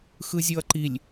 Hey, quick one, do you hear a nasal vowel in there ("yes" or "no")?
no